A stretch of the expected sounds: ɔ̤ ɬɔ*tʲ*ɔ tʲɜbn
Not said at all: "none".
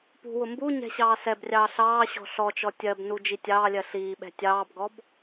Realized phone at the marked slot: t͡ʃ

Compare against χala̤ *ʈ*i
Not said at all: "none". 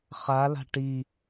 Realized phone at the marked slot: ʈ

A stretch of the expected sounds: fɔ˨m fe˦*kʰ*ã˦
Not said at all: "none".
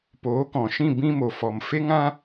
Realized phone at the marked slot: ŋ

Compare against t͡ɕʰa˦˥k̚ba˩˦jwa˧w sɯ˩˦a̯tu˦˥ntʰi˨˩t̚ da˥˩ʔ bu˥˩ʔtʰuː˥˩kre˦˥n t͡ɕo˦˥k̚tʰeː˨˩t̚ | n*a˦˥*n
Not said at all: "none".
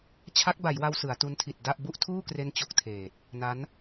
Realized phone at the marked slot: a˦˥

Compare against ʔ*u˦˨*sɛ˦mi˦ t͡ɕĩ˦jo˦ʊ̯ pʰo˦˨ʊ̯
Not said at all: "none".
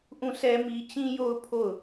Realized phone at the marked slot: ũ˦˨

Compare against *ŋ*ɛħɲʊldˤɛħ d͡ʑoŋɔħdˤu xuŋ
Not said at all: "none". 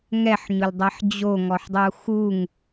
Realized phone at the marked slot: ŋ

